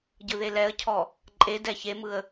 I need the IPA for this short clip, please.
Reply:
ɟ ɯ ð e l ɛ ə̯ cʰ ɔ | ǃʼ e d ɛ ç e m ɯ ə̯

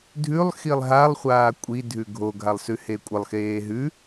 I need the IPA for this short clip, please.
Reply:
dʱ ʉ lˠ x i lˠ ɦ a lˠ χʷ aː kʷʼ i dʱ ʉ ɡʱ o ɡʱ a lˠ s ʉ h e kʷʼ ə lˠ x eː ɦ ʉ

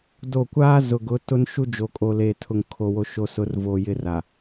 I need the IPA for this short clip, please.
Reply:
d o˦˨ kʷ aː˦ z ʊ˨ ɡ ʊ˨˦ t ʊ˦ n ʃ u˦ d͡ʒ o˨ kʼ o˨ l eː˨ tʰ ʊ˨ ŋ kʰ o˨ w o˨ ʃ o˨ s ʊ˨˦ r v o˨ j ɪ˦˨ r a˨

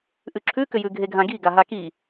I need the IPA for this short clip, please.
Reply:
ʔ ʉ ǁʰ ʉ k ʏ j ʉ ɡʱ e ɡʱ ã ɡ i ɡ a ɦ a k i

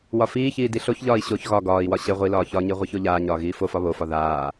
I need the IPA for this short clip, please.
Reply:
w ɒ f iː ç iː d i ɬ o ç ʎ ɒː i̯ ɕ o ç ɣ ɒ ɡ ɒː i̯ w ɒ ɕ ɘ ʁʷ i l ɒː ç ɒ ɲ i ʁʷ i ç o ʎ aː ɲ ɒː ɣ iː f o f ɒ β o f ɒ ð aː

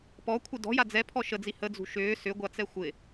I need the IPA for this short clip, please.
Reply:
p ɔ kʷʰ ɪ d ɔ̤ j a d͡z ɛ pʰ ɔ ʃ ə d͡z i h ə d͡z ṳ ʃ ʏː s ʏ ɡʷ a t͡s ɛ xʷ ɪ

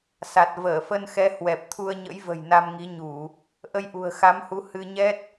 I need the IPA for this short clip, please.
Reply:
s a˨˩ t̚ v əː˧˩ f ə˧ n x ɛ˨˦ h w ɛ˨˩ p̚ t̪ʰ u˧ ə̯ ɲ ə̰˧˥ j v ə̤˨˩ j n a˧ m ŋ i˨˦ ɲ u˧˩˨ | ʔ ə˧ j ʔ ṳ˨˩ ə̯ x a˨˦ m h u˨˦ h ɨ˧ ɲ ɛ˦˥ t̚

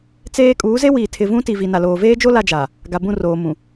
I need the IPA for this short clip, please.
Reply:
t͡s eː˦ kʼ uː˨˦ z e˦ w iː˨ tʰ ɪ˨ v ũ˦ t i˨ v i˨ n a˨ l oː˨ v eː˦ d͡ʒ o˦ l a˦ d͡ʒ a˨ | ɡ a˨ b ũ˦˨ r oː˨ m ũ˨

